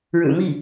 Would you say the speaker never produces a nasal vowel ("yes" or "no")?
yes